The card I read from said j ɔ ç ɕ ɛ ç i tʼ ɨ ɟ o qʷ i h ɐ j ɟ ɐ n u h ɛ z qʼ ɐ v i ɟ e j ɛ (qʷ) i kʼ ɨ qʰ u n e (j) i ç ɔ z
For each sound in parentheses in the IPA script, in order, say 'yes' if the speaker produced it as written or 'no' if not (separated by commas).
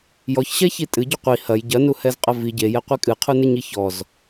yes, no